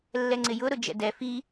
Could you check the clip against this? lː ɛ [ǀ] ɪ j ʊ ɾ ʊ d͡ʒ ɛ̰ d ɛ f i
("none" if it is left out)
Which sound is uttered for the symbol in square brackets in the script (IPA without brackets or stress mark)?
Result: ŋ͡ǀ